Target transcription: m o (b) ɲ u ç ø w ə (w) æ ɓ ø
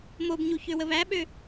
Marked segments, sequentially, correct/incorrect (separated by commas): correct, incorrect